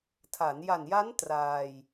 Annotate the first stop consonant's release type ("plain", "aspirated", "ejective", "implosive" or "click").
aspirated